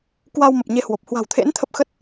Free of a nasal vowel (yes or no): yes